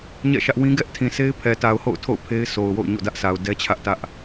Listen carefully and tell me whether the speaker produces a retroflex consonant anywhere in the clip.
no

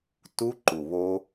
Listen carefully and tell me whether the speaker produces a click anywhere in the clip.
yes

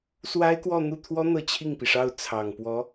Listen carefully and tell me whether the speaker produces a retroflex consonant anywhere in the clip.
yes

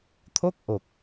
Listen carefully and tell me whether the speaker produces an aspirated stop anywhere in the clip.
yes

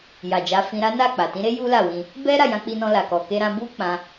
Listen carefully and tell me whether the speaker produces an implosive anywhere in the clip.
no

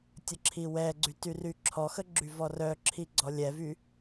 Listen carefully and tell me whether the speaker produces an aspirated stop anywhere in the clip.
yes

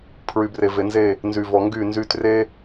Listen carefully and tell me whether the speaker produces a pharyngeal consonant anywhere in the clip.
no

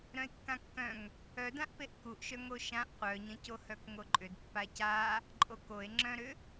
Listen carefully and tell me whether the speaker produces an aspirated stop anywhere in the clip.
no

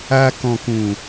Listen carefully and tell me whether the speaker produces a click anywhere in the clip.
no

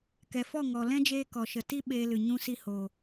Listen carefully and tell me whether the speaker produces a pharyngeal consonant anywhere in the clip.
no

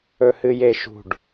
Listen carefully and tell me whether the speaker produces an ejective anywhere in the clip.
no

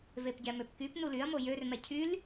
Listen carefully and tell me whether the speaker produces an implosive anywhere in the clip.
no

